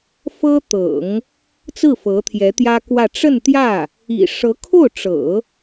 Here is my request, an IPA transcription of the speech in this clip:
f ɤ˥ t̪ ɤ̰˨˩˦ ŋ | t͡s ɹ̩˥˩ f ɤ˧˥ t̪ʰ j ɛ˧˥ t̪ j ä˥ k w ä˥˧ ʈ͡ʂ ə˥˧ n t̪ j ä˥˩ | ḭ˨˩ ʂ ɤ˧˥ kʰ o˥˩ ʊ̯ ʈ͡ʂ ɤ̰˨˩˦

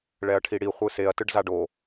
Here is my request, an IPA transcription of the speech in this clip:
ɭ ɛ ɐ̯ ʈʰ i ɽ i χʷ ɯ s e ɐ̯ t ɯ ɖ z a ɖ o

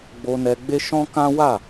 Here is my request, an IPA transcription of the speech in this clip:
ɡ͡b o˧ n ɛ˧ ɡ͡b e˦ ʃ ɔ̃˦ k ã˦ w a˦˨

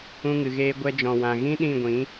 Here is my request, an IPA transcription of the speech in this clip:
ũ˧ ŋ ɨ˨ ɣ eː˧ ɡʷ ɛ˧ d͡ʒ ɔ̃˨ w ã˨ ɣ ĩ˦ ɗ ĩ˦˨ ɡʷ ĩ˨˦

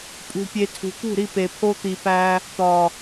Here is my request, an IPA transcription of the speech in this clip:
pʼ ṳ˨ pʲ e˨ tʰ ṳ˨ t̪ ṳ˦˨ ɾ i˦˨ p e˨ pʰ o˦ t̪ i˧ p æ˦ | t̪ ɒ˨

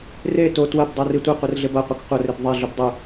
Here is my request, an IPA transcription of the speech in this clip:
r e t o t w ɐ b dˤ o r i tʷ ɪ qʷ ɪ r ɮ ɪ b ɐ qʷ ɐ k qʷ ɐ r ɪ b ðˤ e ɮ ø b dˤ u

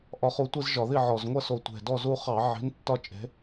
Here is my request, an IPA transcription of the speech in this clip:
ʔ ɒ˨˥ χ u˨˥ tʷ i˧ z ʒ ɒ˧˩˧ ð i˥˨ ʕ ɔ˨˩ z ŋʷ ɐ˥˨ s o˧˩˧ tʷ e̤˨˩ d ɔ˥˨ z u˥˨ χ ɑ˧˩˧ ʕ i̤˨˥ n tː ɒ˥˨ t͡ʃʼ e̤˨˥

